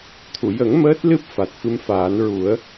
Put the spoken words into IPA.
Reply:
t̪ʰu˨˩˨jə˨˩˦ŋ məː˦˥t̚lɨ˦˥p̚fa˨˩t̚ fɨ˧mfaː˨˩˦n ɹu˨˩˦ə̯

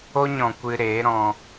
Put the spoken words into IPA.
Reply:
o˦ɲɔ̃˨ kʷɨ˧ɾeː˨˦ɾɔ̃˧

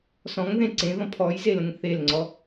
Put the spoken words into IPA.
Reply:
sɔ̃ŋðẽ ǀẽðɔ̃ pʰɔjzelə̃ŋ θelŋ͡ǀɔ

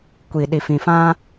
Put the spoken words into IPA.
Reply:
kʷi˨ ɗi˨fĩ˨fã˦

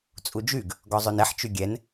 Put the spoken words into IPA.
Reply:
t͡sʼud͡ʒyɡ | ɡɔzˤønɛħ t͡ʃyɡʲɛn

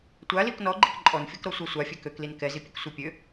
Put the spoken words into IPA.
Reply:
tʷalik nɔɡ͡ǃik ǃʼɔnfʲɔkɾɔ sʷasʷafʲɛ køklin kɛzipʲɛk sʷipʲø

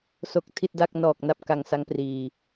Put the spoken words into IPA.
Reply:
so˨˩k̚ tʰi˥˩t̚da˥˩k̚ nɔː˨˩k̚na˦˥p̚ ka˧ŋsa˦˥ŋ priː˧

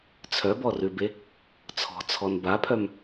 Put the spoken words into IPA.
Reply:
t͡sʰœbɔrʉbe | t͡sʰɔ̤t͡sʰɔn bapʰœm

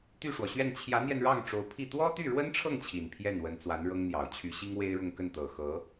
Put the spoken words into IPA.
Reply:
t̪y˥˩ʂwɔ˩ɕɥɛ˥˩n t͡ɕʰjä˧˥n̪jɛ˧n ɻɑ˥˩ŋʈ͡ʂo˧˥ʊ̯pʰi˥˩ t̪wɔ˥t̪y˥˩ɻwə˥nʈ͡ʂʰɤ˥˩ŋ t͡ɕʰi˨˩npʰjɛ˥˩n wə˧˥nt͡swa˧˥nɻɤ˥ŋn̪jɑ˨˩ʊ̯ t͡ɕʰy˧˥ɕi˥ŋwe˥ɪ̯ɻʊ˥˧ŋ kə˥˩nt̪ɤ˨˩xɤ˧˥

